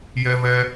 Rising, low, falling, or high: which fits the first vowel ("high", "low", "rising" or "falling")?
high